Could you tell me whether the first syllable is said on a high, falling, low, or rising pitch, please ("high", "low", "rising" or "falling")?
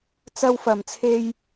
high